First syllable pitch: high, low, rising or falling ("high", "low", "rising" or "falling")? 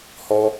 high